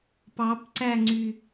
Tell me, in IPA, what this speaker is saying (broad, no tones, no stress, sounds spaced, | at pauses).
p ɑ p ǀ æ ŋ͡ǀ y